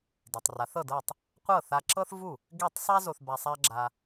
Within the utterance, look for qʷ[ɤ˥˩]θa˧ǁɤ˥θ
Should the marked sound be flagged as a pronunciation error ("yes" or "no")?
no